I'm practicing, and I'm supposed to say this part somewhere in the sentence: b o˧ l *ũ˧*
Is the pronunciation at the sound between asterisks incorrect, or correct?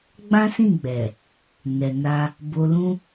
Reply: incorrect